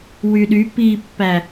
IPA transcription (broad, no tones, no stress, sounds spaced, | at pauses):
w y ɗ y p i pː æ